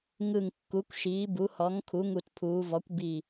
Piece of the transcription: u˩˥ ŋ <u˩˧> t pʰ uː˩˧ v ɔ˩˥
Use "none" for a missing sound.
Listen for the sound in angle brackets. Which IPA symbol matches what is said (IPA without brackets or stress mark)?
u˧˩